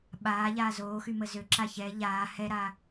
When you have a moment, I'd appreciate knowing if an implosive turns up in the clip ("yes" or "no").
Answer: yes